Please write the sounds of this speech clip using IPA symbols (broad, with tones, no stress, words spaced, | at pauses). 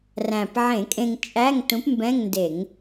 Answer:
ræ̃˨˩pʕẽ˧˩˧kʼẽ˧ŋ t͡ʃʼæ˧˥˧ŋtũ˨˥pmbɛ̃˧˥˧ŋ nde˧˩˧ŋ